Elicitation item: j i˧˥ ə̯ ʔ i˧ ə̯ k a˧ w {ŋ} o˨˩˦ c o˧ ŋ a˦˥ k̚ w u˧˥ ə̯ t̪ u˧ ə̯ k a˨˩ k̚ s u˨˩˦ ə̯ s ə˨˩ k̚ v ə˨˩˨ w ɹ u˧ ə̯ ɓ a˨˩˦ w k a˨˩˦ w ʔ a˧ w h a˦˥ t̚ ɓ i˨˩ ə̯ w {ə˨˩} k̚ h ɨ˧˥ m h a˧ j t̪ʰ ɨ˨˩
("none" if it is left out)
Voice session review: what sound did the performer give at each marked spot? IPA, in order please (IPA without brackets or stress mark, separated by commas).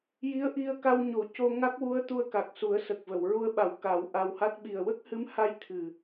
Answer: ɲ, ə˦˥